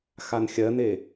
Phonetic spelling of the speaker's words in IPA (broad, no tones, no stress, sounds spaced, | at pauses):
x a n xʲ ɜ n e